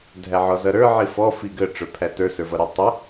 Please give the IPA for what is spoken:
dʱ æ ʕ ɔ z ʌ ɾ ə˞ ʕ i f ɔ f i ɡ ə ʈ͡ʂ ə˞ pʰ æ t ə˞ s ə˞ v ʌ ɾ ʌ tˤ ə

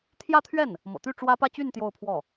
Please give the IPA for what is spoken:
t̪ʰ j ä˥˧ t̪ʰ ɥ ɛ˥˩ n | m ɤ̰˨˩ t̪ y˥˩ ʈ͡ʂ w ä˥ p ä˥˧ t͡ɕ y˥˧ n t̪ j o˥˧ ʊ̯ pʰ w ɔ˥˩

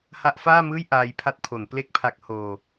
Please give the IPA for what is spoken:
h a˦˥ ʔ f aː˥˩ m ɯː˥˩ j ʔ aː˧ j pʰ a˦˥ t̚ pʰ o˩˦ n p l e˥˩ k̚ pʰ a˦˥ k̚ h oː˧

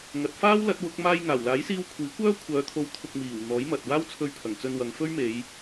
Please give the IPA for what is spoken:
ŋ ɐ˨˥ t̚ f aː˥ w l ɐ˨˥ t̚ w ʊ˨˥ k̚ m aː˧ j ŋ aː˨˩ w l aː˨˥ j s iː˧ w kʷʰ iː˨˥ kʷ œː˥ kʷʰ œː˨˧ t̪ʰ o˨˥ w t̪ʰ ʊ˨ k̚ m iː˨˩ w n̪ ɔː˨˥ j m ɐ˨ t̚ w aː˥ w t͡sʰ ɵ˧ ɥ pʰ ɐ˨˩ ŋ t͡s ɵ˧ n w ɐ˨˧ ŋ f ɵ˥ ɥ m e˨˧ j

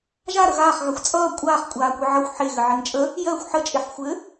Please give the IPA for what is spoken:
ʒ a ɾ ə ɣ aː χ ɣ a xʷ t͡sʼ ʌː kʷʼ aː χ kʷʼ aː kʷ e ʕ ʌ xʷ ħ e ɣ ɘ ʕ e ŋ t͡ʃʼ ə | j ɜ xʷ ħ ə t͡ʃʼ e ħ xʷ ɘ

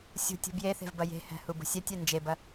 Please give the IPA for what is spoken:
sʲ ṳ tʲ ṳ b j e θ e̤ v b ɐ j e̤ h æ̤ h u b ṳ sʲ ɛ tʲ ɛ n d͡ʒ e b ɐ

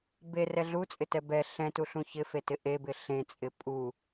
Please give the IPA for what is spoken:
b e r ɛ ɮ u t͡sʼ ɪ t ɛ b ɛ ɬ ɛ̃ t u ɬ ũ ç ɪ f e t ɪ ʔ e b ɪ ɬ ẽ t͡sʼ ɪ pʼ u

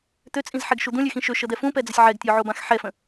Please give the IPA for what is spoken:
t̪ ø t͡sʼ ĩ z ħ ɛ ɡ ʃ u d̪ ũ lʲ ø x ĩ ʃ ø ʃ ə d̪ ɛ f ũ p ɛ d͡z ə sʲ ʕ ɛ ɡ tʲ o ʕ o b ã x ħ ɛ f ə̃

